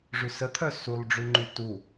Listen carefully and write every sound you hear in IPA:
ʐ ʉ s ə t̪ʰ œ s u lˠ ɖ͡ʐ ʉ ŋ͡ǃ y t u

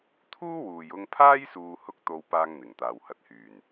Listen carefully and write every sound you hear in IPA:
t̪ʰ uː˥ w uː˨ j ʊ˧ ŋ pʰ aː˥ j s uː˧ h ʊ˥ k̚ t̪ o˧ w p aː˥ ŋ n̪ ɪ˨˩ ŋ t̪ aː˨ w h ɐ˧ t̚ h yː˨˩ n

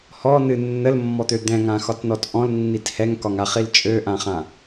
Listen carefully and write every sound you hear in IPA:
h ɔ n ɨ nː ə l mː ɔ t̪ ø d̪ ɛ̃ ŋ ã x ɒ t n ɔ t ʔ ɔ̃ l nː i t h ɛ ŋ k ɒ ŋ a χ i l t͡ʃʼ ø ʔ ã χ ã

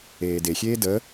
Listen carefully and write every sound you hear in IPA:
eː d e xʲ eː d ə

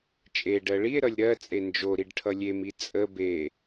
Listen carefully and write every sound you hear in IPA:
t͡ʃʼ e ɖ ɜ ɭ i e̯ ɾ ʌ lʲ ɾ ɜ t͡sʼ e n d͡ʒ o ɾ i ɖ ʈʰ ʌ lʲ e m i t͡sʼ ə b e

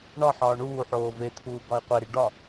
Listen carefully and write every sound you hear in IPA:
ɳ ɒ ħ ɒː ɳ uː ħ oː v e t̪ʰ uː ɡ ɒ i̯ qʷ e ɾ i ɖ ɒ

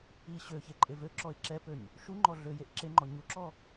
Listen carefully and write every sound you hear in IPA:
i ɕ ø ç e ǃʼ e v ø ǁ ɔ ɪ̯ ǁ ɛ p ø ɲ | ʃ u ŋ͡ǃ ɔ ɮ ø j e ʔ ǁ e ŋ͡ǃ ɔ ɲ u ǁ ɔ

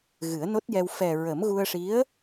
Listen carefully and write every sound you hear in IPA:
ɣ ɨ˨˩˦ ə̯ n o˦˥ t̚ j ɛ˧ w f ɛ˨˩ ɹ ə˨˩˦ m ɣ u˧ ə̯ ʂ i˧˥ ə̯

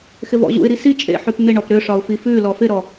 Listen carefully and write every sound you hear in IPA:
x ɪ v ɔ̰ ʑ ṵ ɪ̯ ɾ i s i t͡ʃʼ ḛ ħ ʉ p n̪ ɪ ɳ ɔ p ɾ ʏ ʂ ɒ ʊ̯ f i f ʉ l ɔ f ɪ ɾ ɔ

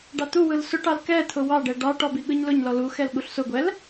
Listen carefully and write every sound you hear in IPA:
ɖ ɑ t̪ u w ɯ l s ʊ ʈ ɑ l k ɛ t̪ʰ ʊ w ɑ ɖ ɛ ɖ ɑ ʈ ɔ b i ɠ ɯ ɲ l ʊ ɲ l ɔ l u x ɛ l ɠ u ɬ s ʊ ɡʷ ɛ l

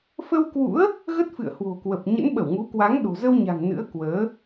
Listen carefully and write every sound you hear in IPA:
f ə˧ w k w ṵ˧˥ ə̯ | ɣ ə˦˥ t̚ f ɨ̰˧˨ ə̯ h w o̤˨˩ k w ə˨˩ p̚ ɲ ə̰˧˥ n ɓ ə˧˩ w ŋ u˨˦ k w a˨˦ ŋ ɗ o̤˨˩ z ə˧ w ɲ a̤˨˩ ŋ n ɨ̰˧˥ ə̯ k w əː˨˦

